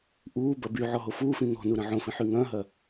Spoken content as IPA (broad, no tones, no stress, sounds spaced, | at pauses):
ʔ uː b ɐ b y ʕ ɔ ɦ o f uː f ĩ n̪ ɔ̤ n u ɾ ɐ̃ ʕ õ f ĩ ħ y ŋ ɐ̃ː ɦ ɐ